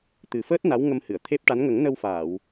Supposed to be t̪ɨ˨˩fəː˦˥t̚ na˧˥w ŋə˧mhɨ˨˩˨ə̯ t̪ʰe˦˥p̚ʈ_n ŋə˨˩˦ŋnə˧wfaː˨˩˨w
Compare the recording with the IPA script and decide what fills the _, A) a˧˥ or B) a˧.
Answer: A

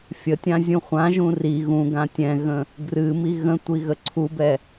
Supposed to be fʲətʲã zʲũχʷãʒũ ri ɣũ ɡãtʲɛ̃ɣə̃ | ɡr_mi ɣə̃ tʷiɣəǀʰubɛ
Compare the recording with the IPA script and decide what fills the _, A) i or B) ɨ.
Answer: B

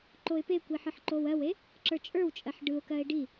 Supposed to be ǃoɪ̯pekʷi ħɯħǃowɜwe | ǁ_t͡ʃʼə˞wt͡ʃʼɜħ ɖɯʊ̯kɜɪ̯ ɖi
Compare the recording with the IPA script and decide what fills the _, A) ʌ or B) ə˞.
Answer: B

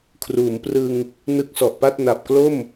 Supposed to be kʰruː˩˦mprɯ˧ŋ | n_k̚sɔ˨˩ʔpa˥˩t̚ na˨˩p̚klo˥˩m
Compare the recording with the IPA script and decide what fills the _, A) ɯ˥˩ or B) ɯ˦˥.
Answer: B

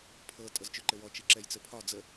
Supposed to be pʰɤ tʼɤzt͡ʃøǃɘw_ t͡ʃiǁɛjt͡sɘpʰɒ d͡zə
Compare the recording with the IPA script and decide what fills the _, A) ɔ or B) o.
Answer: A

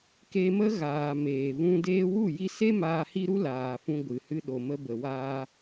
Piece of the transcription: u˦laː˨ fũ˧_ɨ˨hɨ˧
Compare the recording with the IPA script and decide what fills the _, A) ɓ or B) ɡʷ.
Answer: B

